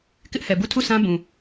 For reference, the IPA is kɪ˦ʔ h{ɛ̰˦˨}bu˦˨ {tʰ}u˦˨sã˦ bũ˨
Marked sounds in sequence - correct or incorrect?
incorrect: ɛ˨, correct

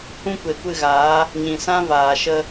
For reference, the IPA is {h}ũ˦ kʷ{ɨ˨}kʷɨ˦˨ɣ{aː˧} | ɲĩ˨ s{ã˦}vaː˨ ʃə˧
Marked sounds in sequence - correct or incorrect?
correct, incorrect: e˨, incorrect: aː˨˦, correct

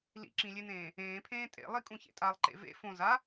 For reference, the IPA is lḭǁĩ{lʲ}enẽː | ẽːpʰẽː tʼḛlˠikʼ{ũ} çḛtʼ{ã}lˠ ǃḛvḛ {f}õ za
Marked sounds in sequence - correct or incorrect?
correct, correct, incorrect: a, correct

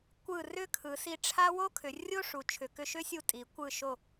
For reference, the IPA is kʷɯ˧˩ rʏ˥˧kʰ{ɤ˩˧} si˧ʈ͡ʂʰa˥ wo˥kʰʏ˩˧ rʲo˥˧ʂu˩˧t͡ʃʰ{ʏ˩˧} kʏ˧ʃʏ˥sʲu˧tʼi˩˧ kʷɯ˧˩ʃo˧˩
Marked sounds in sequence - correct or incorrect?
incorrect: ɯ˩˧, correct

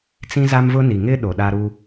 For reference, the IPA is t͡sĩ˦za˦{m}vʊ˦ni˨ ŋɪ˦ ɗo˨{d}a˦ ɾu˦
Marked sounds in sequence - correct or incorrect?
correct, incorrect: ɗ

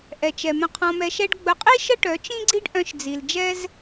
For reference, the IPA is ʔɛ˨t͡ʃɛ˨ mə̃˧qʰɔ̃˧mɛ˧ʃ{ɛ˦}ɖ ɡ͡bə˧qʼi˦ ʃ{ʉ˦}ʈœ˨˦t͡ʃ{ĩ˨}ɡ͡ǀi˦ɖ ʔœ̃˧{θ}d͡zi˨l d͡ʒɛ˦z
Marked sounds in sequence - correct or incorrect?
correct, incorrect: ə˦, incorrect: ĩ˦, incorrect: ʃ

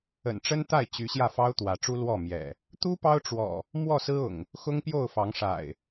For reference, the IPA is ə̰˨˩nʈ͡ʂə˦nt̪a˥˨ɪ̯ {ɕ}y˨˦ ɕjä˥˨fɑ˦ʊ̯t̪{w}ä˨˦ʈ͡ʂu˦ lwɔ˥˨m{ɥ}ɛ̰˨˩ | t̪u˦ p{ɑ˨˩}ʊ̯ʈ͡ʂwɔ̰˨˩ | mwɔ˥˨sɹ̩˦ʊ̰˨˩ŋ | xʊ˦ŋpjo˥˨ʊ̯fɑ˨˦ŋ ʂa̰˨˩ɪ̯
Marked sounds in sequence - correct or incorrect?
incorrect: t͡ɕ, correct, incorrect: j, incorrect: ɑ˦

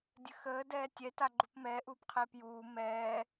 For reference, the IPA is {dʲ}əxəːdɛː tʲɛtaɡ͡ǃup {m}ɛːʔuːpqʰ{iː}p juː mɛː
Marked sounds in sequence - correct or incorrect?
correct, correct, incorrect: eː

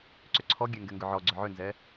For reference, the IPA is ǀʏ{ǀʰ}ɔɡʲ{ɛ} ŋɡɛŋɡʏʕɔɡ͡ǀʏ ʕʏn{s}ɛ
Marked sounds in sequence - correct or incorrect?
correct, correct, incorrect: z

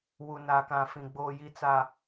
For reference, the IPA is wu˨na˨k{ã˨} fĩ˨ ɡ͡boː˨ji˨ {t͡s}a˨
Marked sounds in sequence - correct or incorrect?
correct, correct

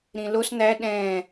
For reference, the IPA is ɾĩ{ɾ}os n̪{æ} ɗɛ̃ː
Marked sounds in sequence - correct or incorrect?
incorrect: l, correct

